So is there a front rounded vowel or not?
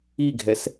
no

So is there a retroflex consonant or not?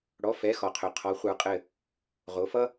yes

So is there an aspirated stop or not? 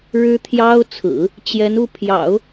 yes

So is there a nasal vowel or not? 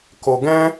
yes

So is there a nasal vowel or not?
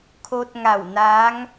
no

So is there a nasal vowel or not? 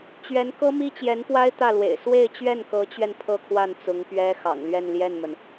no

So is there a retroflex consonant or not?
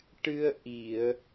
yes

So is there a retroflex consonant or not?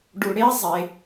yes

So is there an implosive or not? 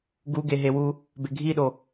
yes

